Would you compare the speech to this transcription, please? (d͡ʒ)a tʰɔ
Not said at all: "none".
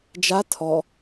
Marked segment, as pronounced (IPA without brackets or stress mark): d͡ʒ